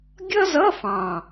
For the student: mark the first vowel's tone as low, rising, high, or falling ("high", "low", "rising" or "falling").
high